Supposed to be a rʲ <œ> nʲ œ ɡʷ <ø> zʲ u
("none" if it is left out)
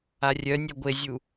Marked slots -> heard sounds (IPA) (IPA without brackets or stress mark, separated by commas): œ, e